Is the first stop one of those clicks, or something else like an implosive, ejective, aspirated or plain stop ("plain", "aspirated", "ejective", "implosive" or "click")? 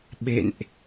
implosive